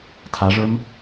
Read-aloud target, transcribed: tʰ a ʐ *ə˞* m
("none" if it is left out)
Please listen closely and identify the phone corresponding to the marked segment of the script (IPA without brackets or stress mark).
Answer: ə˞